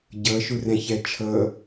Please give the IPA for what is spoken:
ɟ ɤ ʃ u r ɛ̃ ç ɛ t͡ʃʰ ɤ

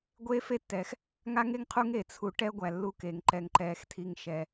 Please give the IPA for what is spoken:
ɡʷ eː˥ f e˥ tː ɛː˨ x | ŋ a˥ ŋ e˥ ŋ qʰ u˦ ŋ e˨ t͡sʰ u˨ ʈ ɛ˦ ɡʷ æ˩ lː u˨ k eː˩ ŋ ǃ ɛ˩ ŋ ǃ ɛː˩ x tʰ i˩ ŋ ʃ ɛ˩

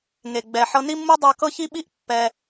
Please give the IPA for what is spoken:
ŋ e˩ ɡ͡b ɛ˩ ħ ɤ˧ n i˥ mː u˥ dˤ a˧ k ɤ˥ ç i˥ ɓ i˥ ʔ pː ɛ˩

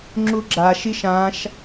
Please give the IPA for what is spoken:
ŋ͡ǁ u ɡ͡ǁ a ʃ i ʃ ã ʃ

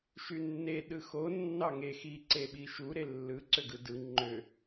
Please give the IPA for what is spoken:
ʃ y nː e ɗ ɯ x o nː ɑ ŋ e x i ǀ e ɓ i ʃ u ɾ e lː ɯ ǀ ø ɡ ɯ d ɯ ŋ͡ǃ ø

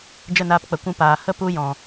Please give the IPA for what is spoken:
d͡ʒ ə˦˨ n aː˧ p k͡p ə˨ kʷ ũ˧ p aː˨ h ə˦ p u˦ j ɔ̃˨

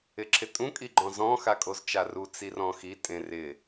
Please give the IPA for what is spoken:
ɪ ǁʰ ɪ tʼ ũ kʼ i ɡ͡ǃ ɔ̃ z ɔ̃ x a kʼ o z t͡ʃ a r u t͡s i r ɔ̃ x i tʼ ẽ r ɪ

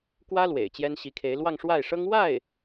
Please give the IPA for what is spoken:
k w ä˥ l w ḛ˨˩ ɪ̯ t͡ɕ j ɛ˥ n ɕ i˧˥ kʰ e˧˥ ɪ̯ l w ɑ˥˧ ŋ ʂ w a˥˩ ɪ̯ ʂ ɤ˥ ŋ w a˥˩ ɪ̯

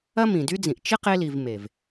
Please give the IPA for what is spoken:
ɐ˦ m ĩ˨ d y˦ d͡z ĩ˨ ʔ t͡ʃ ɪ˦ q e˧ l i˨ v m e˨ v

